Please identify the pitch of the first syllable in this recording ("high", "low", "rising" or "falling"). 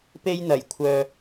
high